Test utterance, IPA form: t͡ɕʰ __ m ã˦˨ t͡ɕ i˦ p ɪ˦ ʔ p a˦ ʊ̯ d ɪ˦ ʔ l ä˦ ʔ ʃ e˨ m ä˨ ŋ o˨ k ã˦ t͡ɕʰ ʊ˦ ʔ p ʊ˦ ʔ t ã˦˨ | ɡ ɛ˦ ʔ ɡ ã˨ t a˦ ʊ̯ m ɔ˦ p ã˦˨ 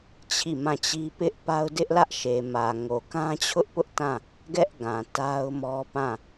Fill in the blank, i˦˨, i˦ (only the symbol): i˦˨